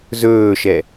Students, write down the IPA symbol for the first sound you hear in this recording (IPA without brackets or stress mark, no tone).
z